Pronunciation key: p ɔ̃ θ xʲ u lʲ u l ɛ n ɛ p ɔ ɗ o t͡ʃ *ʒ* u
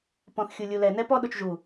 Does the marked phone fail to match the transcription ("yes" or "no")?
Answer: no